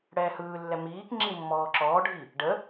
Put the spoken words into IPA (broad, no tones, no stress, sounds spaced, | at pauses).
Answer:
ɽ ɛː h ɯː lː ɛ m iː k ŋ͡ǁ i mː ɔː ǁ ɔː ɖʱ i | ɖ ə